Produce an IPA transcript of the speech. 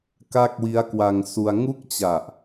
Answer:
ka˥˩k̚wi˦˥a̯kwa˧ŋsu˧a̯ ŋu˥˩k̚t͡ɕa˨˩ʔ

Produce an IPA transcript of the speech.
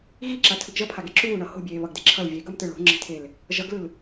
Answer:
ɣiǁatʰɯɡ ʒʌpʰaɡe ǁuːɳʌ ho̤bʲeːβʌɡde ǁʰʌl vʲeɡʌmtɯ ɭo̤ŋ͡ǁe̤tʰel | ʒʌɡlɯl

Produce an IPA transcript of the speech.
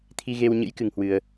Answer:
t̪ʰi˧ɣe˧wɲɨ̰˧˥j kɨ˧ŋhwɨ˧ə̯

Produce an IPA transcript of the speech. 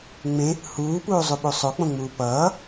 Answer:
ŋ͡mẽ | huːpuːzˤuɓu sˤok͡põŋ͡muː pʌː

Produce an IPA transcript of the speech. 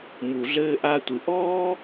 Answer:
mu˩ɮɘː˧ ʔa˧tʷɨ˩ ʔɔː˥

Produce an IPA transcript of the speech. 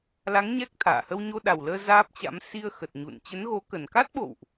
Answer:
la˨˦ŋ ɲɛ˦˥k̚t̪ʰa̰ː˧˨ hə˧wɲo˧ɗa˨˩wləː˧ zaː˦˥p̚t͡ɕa̰˧˥m si˧ə̯xə˨˩t̚ ɲṵ˧˨n t͡ɕə˨˦nɣo˨˦kə˨˩n ka˦˥t̚ɓo̰˧˨wʔ

